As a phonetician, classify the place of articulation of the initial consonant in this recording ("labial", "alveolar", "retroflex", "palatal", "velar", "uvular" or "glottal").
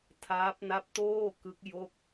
alveolar